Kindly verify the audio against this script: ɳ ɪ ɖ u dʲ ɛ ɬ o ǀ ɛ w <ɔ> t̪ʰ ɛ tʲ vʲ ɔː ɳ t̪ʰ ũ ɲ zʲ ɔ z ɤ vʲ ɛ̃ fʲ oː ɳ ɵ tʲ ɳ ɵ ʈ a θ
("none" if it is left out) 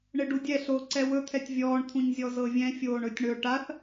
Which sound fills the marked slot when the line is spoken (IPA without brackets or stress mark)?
ɵ